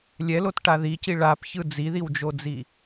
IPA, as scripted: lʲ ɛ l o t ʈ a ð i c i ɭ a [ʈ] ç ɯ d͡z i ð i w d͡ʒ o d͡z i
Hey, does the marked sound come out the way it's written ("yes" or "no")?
no